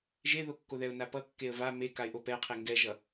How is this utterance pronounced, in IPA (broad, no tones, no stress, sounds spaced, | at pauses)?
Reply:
ʒ e ð o kː o ð ɛ ʊ̯ n a p ʌ kː e ə̯ v a m e k a ɪ̯ ʔ o p ɛ qʰ e ŋ ɡ ɛ ʒ ʌ